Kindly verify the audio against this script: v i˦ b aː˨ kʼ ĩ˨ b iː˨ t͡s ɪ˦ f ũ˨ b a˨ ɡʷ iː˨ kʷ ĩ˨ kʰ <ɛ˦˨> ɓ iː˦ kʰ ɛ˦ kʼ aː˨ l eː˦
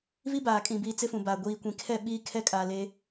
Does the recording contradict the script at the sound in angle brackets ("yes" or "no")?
no